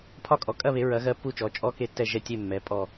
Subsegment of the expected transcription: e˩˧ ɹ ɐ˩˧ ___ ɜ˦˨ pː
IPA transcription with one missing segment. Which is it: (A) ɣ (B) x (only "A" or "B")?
A